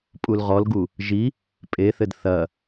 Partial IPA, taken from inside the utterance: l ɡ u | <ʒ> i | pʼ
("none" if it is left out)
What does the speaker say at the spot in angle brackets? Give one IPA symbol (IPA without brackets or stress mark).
ʒ